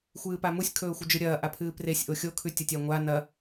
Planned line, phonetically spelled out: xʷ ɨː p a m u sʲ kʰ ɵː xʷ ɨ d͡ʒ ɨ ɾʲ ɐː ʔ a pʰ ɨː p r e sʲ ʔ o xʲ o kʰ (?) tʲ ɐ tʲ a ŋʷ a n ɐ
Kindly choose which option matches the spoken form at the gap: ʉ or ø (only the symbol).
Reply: ʉ